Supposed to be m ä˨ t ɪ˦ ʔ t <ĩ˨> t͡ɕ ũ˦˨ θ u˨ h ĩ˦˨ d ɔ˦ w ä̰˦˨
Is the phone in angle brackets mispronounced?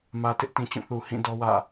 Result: no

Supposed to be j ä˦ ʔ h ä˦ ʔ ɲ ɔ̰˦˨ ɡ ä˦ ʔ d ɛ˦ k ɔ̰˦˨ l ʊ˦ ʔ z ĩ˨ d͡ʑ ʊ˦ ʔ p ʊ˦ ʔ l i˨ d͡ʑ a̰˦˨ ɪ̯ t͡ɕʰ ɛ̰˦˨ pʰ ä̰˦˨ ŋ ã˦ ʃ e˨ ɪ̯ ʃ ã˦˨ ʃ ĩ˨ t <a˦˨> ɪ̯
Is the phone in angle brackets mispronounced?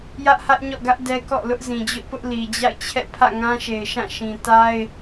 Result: yes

